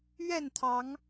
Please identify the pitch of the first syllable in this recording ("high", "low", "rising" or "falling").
falling